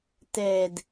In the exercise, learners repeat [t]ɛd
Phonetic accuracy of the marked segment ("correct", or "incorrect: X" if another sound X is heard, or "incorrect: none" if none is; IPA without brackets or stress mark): correct